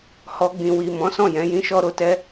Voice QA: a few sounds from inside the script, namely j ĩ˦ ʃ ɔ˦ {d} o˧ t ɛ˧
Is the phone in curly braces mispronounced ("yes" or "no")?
yes